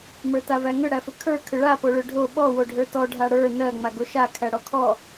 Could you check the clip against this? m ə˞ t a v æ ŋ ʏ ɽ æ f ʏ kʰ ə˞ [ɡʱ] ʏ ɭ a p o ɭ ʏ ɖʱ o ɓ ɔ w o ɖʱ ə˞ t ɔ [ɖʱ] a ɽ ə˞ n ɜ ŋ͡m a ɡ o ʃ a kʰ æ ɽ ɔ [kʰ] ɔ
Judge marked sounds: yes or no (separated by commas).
no, yes, yes